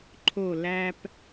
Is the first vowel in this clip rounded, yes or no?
yes